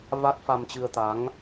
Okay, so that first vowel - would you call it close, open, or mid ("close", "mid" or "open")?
open